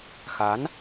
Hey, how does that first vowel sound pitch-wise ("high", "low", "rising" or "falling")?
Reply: rising